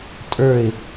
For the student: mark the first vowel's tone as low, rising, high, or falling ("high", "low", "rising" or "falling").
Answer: falling